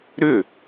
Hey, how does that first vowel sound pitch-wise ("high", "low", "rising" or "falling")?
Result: falling